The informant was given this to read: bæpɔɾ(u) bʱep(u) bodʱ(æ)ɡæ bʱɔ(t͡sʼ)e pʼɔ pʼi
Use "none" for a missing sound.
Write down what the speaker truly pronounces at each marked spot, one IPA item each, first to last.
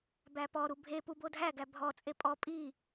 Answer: u, u, æ, t͡sʼ

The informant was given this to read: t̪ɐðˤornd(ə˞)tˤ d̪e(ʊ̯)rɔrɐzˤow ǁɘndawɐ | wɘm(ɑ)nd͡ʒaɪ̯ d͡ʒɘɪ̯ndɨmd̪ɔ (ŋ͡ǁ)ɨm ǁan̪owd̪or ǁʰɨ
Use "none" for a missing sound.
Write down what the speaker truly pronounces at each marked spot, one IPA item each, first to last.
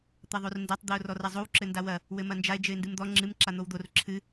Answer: ɐ, ʊ̯, ɐ, ŋ͡ǁ

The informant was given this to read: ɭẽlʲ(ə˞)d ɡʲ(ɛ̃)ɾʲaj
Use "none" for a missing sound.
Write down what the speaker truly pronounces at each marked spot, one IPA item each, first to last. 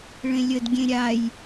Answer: ə, ẽ

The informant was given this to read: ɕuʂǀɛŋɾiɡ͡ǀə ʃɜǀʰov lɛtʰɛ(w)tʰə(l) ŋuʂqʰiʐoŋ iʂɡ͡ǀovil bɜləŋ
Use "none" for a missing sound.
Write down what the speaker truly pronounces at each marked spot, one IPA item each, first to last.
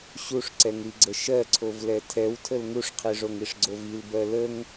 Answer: w, l

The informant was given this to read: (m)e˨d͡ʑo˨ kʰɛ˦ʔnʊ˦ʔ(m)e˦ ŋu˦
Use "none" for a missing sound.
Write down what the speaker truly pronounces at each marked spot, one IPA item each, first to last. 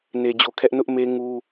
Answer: n, m

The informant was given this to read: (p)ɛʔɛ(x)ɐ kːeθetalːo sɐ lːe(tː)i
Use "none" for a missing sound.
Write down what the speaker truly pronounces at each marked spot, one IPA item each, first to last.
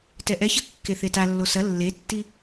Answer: t, ç, tː

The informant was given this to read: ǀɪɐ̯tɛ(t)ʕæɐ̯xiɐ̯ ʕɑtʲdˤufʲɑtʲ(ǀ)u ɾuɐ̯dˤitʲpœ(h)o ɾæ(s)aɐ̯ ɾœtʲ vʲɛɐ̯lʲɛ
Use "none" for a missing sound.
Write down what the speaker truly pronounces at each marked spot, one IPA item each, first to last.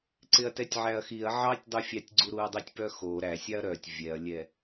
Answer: tʲ, ɡ͡ǀ, x, sʲ

